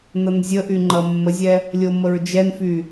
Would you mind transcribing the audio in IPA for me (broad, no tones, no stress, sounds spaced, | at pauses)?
n ʌ n zʲ ə ʔ y ŋ͡ǃ ʌ mː ə zʲ ɛ | lʲ o m ə ɹ d͡ʒ ɛ n f y